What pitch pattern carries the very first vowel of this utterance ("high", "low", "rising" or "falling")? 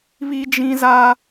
high